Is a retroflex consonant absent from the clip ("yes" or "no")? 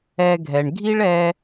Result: no